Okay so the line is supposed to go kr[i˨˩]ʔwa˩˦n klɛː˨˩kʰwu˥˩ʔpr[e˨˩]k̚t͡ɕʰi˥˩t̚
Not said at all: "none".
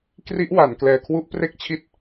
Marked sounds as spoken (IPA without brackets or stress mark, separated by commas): i˦˥, e˥˩